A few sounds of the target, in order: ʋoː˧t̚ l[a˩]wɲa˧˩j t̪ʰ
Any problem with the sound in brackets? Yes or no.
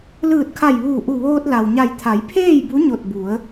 no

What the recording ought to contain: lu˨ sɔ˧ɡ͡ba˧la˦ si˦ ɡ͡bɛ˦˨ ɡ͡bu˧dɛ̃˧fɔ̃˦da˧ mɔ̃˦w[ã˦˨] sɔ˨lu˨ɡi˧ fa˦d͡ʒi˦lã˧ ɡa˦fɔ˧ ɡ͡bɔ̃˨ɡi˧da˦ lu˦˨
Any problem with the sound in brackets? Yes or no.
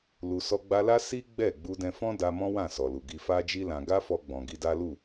no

